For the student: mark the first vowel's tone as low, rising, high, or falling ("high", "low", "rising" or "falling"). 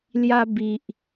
high